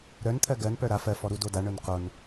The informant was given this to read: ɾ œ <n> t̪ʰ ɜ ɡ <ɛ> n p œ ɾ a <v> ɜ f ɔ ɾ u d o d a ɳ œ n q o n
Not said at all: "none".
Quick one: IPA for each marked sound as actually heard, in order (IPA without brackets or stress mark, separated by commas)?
n, ɜ, f